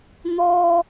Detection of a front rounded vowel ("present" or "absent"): absent